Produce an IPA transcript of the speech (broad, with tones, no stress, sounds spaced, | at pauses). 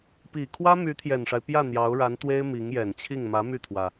p i˨˩ kʰ w ä˥ m y˧˥ t̪ʰ j ɛ˨˩ n ʂ a˦ ɪ̯ p j ä˥˩ n̪ j ɑ˧˥ ʊ̯ ɻ a˧˥ n t̪ w e˥ ɪ̯ m i˧˥ ŋ j ɛ˨˩ n t͡ɕʰ i˥˩ ŋ m ä˧˥ m y˥˩ t̪ʰ w ä˩